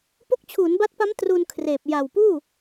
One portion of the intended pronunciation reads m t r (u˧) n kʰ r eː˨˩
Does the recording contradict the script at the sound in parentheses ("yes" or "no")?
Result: no